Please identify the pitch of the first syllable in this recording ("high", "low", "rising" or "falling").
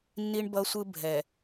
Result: high